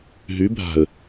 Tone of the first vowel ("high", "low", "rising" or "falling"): rising